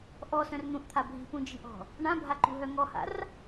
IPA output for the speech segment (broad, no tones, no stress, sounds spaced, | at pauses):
ʔ ɔ s œ̃ r n̪ ũ ʔ t̪ʰ a bʱ i̤ p ũ d͡ʒ i̤ ʔ ɔ̤ | ɳ ã bʱ a ǃ ṳ ɦ œ ŋ ɔ h a̰ r